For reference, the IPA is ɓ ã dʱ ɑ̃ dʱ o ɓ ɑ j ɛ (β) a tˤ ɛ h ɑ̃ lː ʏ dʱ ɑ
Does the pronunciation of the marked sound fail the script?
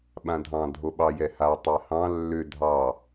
yes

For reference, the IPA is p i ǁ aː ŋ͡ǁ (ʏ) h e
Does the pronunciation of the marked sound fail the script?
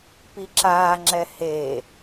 yes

